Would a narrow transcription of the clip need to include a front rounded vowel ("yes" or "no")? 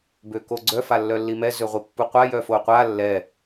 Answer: yes